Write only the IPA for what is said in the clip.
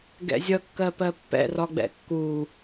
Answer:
ɡɛ̰zʲʌ kːɜpɜpːɛ̰ rɒɡ͡bɛ̰kːu

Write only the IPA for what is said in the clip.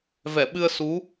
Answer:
vɛ˧˩ɓɨ˧ə̯su˨˦

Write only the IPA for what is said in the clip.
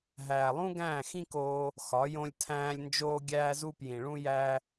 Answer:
ɦæː˨lˠũ˦ ɡæ̃ː˦˨xĩ˦koː˧ | xɒ˨˦ jõ˧lʲtʰæ̃ː˧lʲ nd͡ʒoː˧ɡʲæː˧zu˧ pjĩ˨ɭũ˦ jæ˧

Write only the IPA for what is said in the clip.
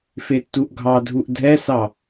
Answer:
fetːuʔɡʱɑdʱuʔ dʱɛsɑ

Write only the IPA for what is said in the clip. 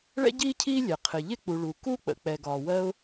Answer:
ɭɛ̰˥ɟiː˥cʰiː˥lʲɛ˩ qʰɪ˩ ʎɪ˥k͡pu˩ ɭu˩ ku˥k͡pə̰˩ k͡pɛ˩ɡɒː˩ wɜ˥ʊ̯

